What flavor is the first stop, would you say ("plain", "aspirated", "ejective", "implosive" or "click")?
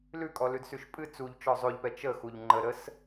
ejective